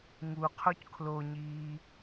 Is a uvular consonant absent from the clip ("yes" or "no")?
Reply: no